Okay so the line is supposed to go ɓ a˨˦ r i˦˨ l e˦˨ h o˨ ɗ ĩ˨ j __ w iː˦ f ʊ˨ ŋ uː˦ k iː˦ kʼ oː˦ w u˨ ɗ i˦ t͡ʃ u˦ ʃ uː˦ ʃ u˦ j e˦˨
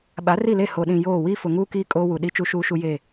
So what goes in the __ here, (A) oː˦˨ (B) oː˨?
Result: A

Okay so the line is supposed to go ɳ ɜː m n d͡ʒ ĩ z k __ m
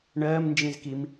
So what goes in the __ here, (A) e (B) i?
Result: B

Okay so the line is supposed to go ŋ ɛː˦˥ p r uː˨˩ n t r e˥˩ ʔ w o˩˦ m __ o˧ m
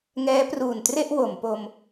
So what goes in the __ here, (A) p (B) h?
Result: A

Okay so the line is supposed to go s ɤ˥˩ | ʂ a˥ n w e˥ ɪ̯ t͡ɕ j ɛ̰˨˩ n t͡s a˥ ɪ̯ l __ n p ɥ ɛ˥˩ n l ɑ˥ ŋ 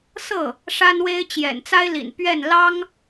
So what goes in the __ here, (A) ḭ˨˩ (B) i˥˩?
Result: A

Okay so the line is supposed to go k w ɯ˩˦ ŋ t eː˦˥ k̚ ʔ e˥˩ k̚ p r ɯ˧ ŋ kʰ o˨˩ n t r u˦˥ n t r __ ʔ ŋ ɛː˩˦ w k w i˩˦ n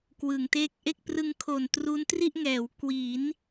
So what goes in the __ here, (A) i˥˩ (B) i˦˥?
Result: A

